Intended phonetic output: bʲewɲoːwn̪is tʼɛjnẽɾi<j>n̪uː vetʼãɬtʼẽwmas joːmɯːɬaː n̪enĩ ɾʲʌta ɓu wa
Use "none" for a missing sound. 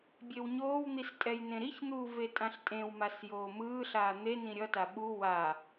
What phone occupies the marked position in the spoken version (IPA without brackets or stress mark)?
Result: ç